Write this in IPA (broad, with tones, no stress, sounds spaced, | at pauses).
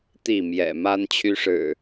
t̪ i˥˨ m j ɛ̰˨˩ m a˦ n t͡ɕʰ y˦ ʂ ɻ̩˨˩